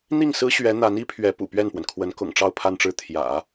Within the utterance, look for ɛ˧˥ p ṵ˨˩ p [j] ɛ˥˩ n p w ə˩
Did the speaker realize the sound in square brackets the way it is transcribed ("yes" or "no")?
no